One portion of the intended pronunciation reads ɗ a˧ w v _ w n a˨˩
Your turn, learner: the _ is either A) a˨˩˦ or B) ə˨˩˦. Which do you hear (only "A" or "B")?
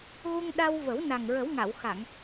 B